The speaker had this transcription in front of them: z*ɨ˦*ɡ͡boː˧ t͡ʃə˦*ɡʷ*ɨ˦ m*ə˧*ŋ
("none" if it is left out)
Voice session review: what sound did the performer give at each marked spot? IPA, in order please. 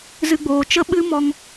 ɨ˦, ɓ, ɔ˧

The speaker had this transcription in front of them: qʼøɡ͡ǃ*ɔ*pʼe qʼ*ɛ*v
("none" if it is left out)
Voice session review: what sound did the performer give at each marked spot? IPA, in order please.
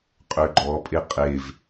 ɔ, e

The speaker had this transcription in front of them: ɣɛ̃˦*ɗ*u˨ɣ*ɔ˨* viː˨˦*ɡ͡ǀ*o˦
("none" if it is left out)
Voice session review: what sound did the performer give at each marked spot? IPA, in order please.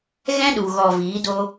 ɗ, ɔ˨, d

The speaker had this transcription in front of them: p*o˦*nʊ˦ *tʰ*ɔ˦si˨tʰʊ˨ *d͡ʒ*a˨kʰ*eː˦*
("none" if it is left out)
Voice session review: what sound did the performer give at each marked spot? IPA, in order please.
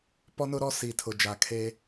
ɔ˦, ɾ, d͡ʒ, eː˦

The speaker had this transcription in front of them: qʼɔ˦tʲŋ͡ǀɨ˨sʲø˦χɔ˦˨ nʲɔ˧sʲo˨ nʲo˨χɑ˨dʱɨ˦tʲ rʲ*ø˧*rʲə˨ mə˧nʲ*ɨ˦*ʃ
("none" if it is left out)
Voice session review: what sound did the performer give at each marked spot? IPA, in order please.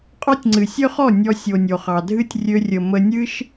ø˧, ɨ˦

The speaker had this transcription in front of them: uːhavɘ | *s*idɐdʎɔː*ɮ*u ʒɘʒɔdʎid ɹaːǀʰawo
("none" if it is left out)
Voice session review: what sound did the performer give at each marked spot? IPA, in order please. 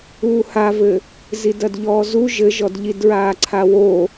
z, z

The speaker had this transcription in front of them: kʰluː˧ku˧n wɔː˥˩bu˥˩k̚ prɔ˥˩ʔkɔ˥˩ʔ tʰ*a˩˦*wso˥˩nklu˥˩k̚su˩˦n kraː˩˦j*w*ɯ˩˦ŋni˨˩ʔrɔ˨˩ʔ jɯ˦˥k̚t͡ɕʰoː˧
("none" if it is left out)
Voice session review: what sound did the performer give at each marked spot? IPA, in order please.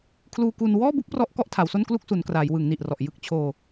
a˩˦, w

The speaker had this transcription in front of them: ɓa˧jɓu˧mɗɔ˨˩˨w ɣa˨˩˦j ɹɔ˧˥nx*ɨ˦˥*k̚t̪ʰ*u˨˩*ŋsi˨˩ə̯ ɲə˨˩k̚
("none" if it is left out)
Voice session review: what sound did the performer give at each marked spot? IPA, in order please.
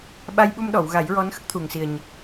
ə˦˥, u˨˩

